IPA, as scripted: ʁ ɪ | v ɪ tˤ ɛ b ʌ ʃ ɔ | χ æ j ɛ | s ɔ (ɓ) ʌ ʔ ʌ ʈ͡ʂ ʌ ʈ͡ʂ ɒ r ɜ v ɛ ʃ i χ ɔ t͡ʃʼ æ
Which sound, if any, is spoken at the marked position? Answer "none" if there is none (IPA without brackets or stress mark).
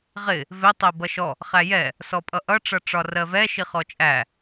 pʼ